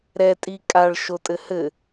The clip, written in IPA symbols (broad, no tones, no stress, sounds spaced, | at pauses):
ɾ ɛ tʼ i kʼ a ɭ ʃ o tʼ ɘ h ɘ